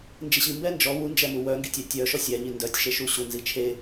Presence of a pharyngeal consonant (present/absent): absent